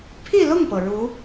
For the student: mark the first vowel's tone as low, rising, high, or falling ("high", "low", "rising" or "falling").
falling